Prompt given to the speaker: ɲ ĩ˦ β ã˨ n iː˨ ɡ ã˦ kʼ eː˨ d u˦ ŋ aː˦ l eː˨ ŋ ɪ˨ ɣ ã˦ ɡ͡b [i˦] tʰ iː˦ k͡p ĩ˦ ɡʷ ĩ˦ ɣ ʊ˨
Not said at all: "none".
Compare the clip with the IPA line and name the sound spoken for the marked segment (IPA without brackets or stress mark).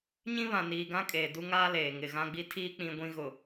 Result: i˦